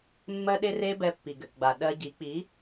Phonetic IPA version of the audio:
mːɜ˦ɗe˦re˦ bɛ˧ pːi˨ɡɘ˨kɡ͡ba˨ ɗɜ˧ɟi˨˦ k͡pi˨˦

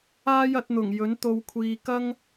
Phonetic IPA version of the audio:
aː˥jɐ˨˥t̚ n̪ʊ˨˩ŋ jɵ˨˥nt̪o˧wkʷʰiː˧ kɐ˥ŋ

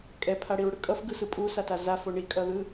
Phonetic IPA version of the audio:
kʼɛpʰaɽiɹɽɯ kʼʌfɡɯsɯ pʼusata zafo ɳikʼʌðɯ

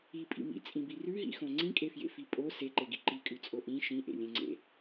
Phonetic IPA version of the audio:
ipʼḭ mḭt͡sʼĩbi rʉɦḭxõ ŋ͡ǀĩkʼefjḛfi pʼo seǃeɡi ǃikʼʉt͡sʼo ʔĩ ʃĩʔḛlʲẽŋ͡ǀḛ

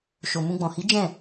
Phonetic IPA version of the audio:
ʃo˨mũ˧ɡ͡bɔ̃˨ hi˨˦ d͡ʒɛ̃˦˨

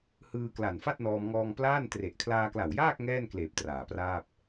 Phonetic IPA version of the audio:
hɯː˧ kla˨˩nfa˥˩t̚nɔː˧mŋɔː˧ŋ plaː˥˩n tre˨˩ʔkʰlaː˧kla˨˩wjaː˥˩k̚ ŋɛː˥˩nkleː˨˩p̚ traː˨˩praː˥˩p̚

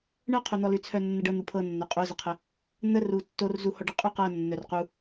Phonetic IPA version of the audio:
ɳɤqʰon̪ɔ lʉt͡sʰœnːəɖɤ n̪upʰɤnːœ qʼozəqʰə | n̪əru tːorzu hɔɖə qʼʉqɤ nːœrqu

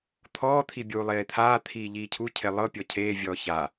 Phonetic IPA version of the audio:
t̪ʰɔːt̪ʰi bʲuːlˠeːt̪ʰaːt̪ʰiː ʎiːcʰucʰe lˠɤpʲɔ cʰeːvʲɔː ça

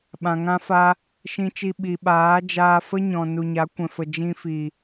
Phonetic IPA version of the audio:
ɓã˨ŋã˦fa˦ | ʃĩ˧t͡ʃi˧ ɓi˨ɓaː˨˦ d͡ʒaː˧fə˦ɲɔ̃˨ nu˨ɲa˨˦kʷɛ̃˨fə˨ d͡ʒĩ˧fi˨

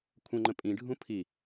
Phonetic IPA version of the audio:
kʷʰə̃ŋ͡ǃə̃ pʼĩɖʱũ pʰi

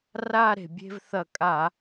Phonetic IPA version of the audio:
ra˦˨ ɾe̤˩ bʲe̤˦˨vθɐ˧˩˧ kʼa˧˩˧

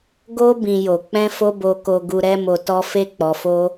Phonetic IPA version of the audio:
ɡo˧ bĩ˧jo˨ k͡pɛ̃˧fo˧bo˨ko˨ ɡu˨ɾɛ˧mo˨tɔ˧ fe˦k͡pɔ˧fo˦

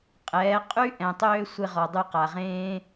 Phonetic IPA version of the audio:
qʼɛː˨˦qʼy˦ ʔɛ̃˨tˤøː˦ sʷe˦ʁɔ˧ dˤy˧qa˨ʁẽː˦

